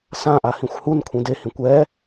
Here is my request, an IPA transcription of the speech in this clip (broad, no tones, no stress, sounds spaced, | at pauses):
s ã ʔ a h ĩ xʷ h u n kʷʰ ĩ d e h ĩ kʷ ɛ